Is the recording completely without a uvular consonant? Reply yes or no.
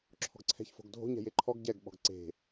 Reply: yes